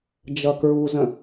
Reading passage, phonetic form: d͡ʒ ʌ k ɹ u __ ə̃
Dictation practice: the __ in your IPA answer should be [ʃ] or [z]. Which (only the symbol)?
z